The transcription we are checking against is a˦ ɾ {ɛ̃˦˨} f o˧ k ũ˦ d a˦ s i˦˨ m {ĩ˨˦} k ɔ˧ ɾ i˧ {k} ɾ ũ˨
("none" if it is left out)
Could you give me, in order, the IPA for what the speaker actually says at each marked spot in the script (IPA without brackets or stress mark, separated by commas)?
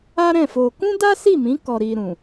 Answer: ɛ̃˦˨, ĩ˨˦, none